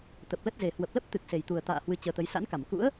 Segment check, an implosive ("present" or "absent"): absent